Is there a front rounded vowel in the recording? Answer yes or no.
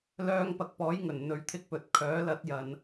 yes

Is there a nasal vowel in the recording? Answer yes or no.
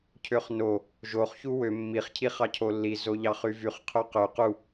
no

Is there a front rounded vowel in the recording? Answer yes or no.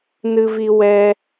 no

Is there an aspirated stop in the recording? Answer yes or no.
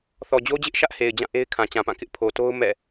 yes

